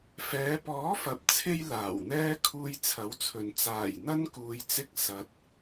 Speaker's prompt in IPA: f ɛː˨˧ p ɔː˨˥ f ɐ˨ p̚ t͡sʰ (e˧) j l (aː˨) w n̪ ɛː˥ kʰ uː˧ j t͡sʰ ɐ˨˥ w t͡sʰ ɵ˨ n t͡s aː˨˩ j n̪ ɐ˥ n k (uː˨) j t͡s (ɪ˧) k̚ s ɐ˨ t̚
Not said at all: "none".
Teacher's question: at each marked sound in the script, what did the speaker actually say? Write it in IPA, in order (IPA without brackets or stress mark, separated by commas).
e˧, aː˨˩, uː˨, ɪ˧